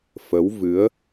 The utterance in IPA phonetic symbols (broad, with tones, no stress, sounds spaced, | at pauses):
f ə˨˦ w v ɨ˨˦ ə̯